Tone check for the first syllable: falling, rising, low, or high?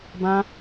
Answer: high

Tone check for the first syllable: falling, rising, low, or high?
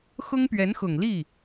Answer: high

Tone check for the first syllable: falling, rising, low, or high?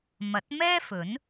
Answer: rising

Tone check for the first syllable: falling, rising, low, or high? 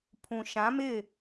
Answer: low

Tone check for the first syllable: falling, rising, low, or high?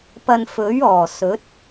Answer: low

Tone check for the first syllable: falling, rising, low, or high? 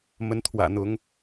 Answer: rising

